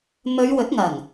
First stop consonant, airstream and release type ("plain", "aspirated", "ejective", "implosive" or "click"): plain